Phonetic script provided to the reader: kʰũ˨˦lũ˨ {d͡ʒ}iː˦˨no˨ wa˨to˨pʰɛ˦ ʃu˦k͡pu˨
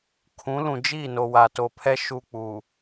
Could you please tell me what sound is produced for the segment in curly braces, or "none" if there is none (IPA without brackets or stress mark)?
d͡ʒ